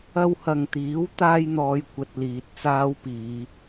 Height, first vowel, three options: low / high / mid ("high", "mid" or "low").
low